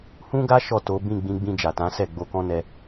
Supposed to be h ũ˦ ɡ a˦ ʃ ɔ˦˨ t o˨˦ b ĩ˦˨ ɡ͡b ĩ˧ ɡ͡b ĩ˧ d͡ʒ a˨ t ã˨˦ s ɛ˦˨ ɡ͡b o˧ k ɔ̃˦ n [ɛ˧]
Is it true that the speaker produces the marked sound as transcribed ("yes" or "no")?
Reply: yes